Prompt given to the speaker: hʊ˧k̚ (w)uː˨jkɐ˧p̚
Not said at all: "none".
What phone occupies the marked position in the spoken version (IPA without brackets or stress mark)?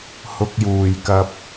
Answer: j